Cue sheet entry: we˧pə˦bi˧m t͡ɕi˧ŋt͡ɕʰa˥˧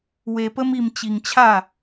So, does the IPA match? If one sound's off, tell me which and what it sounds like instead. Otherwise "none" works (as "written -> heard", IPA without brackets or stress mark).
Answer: b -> m